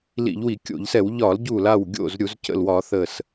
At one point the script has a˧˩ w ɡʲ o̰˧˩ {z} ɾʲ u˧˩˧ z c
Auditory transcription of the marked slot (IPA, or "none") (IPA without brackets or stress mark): z